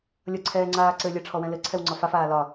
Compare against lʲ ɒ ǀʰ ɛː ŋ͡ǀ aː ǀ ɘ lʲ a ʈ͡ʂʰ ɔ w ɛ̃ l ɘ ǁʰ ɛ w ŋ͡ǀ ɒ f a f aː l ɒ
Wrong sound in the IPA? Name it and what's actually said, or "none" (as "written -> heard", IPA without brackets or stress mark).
ǁʰ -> ǀʰ